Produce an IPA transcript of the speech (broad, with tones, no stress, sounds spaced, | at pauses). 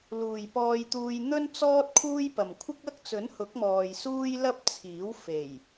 l uː˨ j p ɔː˧ j t̪ uː˧ j n̪ ɵ˥ n t͡s ɔː˥ t̚ kʰ uː˥ j p ɐ˨ m kʷʰ ɪ˥ k̚ ɐ˥ k̚ t͡s ɵ˨˥ n h ʊ˨˥ k̚ m ɔː˨ j s uː˥ j l ɐ˥ p̚ t͡sʰ iː˨˥ w f e˨˩ j